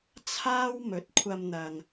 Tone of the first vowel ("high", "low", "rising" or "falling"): high